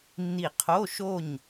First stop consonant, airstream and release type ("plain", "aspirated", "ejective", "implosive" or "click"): aspirated